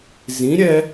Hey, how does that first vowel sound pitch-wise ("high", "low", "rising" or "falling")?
rising